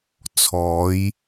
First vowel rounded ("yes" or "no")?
yes